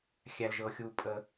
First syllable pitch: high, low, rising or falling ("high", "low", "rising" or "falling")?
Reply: low